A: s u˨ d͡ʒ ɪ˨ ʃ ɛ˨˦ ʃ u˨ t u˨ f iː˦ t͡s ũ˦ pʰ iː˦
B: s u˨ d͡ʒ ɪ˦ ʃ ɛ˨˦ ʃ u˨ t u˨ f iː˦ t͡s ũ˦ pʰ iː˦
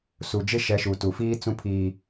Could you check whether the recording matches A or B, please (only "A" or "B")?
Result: B